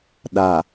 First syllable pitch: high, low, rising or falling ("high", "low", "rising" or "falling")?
low